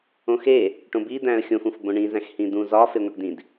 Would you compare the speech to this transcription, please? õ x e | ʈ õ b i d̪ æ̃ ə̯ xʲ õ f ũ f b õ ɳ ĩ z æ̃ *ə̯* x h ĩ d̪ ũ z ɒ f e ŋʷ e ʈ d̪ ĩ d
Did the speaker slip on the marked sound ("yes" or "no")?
yes